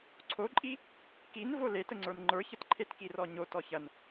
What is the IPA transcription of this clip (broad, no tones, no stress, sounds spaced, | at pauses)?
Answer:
ǀʰ o ǃʼ i | k i n v o l e t ə ŋ͡ǀ ə˞ n ŋ͡ǃ ə˞ ç ə t ǃʰ e t k i r ɔ ɲ o t ɔ ç ɐ n